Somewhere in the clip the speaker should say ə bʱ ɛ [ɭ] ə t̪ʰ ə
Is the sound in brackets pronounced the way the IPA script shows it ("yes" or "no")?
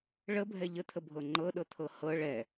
no